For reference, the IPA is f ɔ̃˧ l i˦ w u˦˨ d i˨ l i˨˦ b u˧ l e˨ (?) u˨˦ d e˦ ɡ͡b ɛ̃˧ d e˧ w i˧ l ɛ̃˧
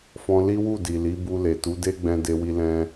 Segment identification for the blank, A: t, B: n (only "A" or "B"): A